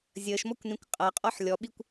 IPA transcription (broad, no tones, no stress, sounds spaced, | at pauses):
zʲ əː ʃ m ɔ kʷ n ĩ kʷ qʼ ʌ qʼ ɔ ħ lʲ ɔ ɓ i kʷ